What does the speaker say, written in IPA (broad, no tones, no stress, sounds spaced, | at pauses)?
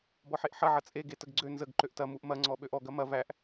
b ɔ ħ e ʔ ħ ɐ ʕ ɐ t͡sʼ e ɡ e t ə ɡ ɡ͡ǀ ø n z ə ɡ ǃ ø ʔ t ɐ m u ʔ m ɐ ŋ͡ǀ ɔ ɓ ø ʔ ɔ ɡ ɐ m ɐ v æ ʔ